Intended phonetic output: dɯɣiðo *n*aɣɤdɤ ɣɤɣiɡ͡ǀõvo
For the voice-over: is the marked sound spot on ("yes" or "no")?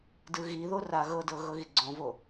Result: no